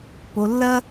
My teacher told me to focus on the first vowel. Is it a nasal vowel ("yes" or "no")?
no